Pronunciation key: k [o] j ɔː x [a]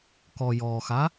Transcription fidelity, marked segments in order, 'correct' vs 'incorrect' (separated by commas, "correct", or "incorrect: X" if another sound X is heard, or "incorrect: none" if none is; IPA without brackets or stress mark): incorrect: ɔ, correct